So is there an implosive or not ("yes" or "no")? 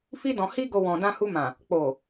no